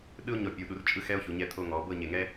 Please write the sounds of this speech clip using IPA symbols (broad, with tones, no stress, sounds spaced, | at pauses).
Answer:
ɗ ɯ˥ o̯ ɲ ɔ˧˩ pʲ u˩˧ ɗ u˩˧ r t͡ʃʼ ɯ˥ x ɛ˥ o̯ ç u˩˧ ɲ ɛ˧ t̪ʰ o˧ ŋ ɔ˩˧ b ɤ˥˧ ɲ e˧˩ ŋ ɛ˥